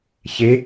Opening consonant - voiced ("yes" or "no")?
no